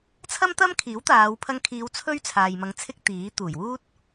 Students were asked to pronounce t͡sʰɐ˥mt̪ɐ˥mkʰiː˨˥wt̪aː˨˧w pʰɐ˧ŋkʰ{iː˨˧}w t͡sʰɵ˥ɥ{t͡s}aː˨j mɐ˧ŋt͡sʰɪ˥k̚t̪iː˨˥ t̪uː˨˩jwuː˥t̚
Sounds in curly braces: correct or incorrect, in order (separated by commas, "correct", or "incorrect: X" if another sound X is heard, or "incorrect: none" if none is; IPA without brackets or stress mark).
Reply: correct, incorrect: t͡sʰ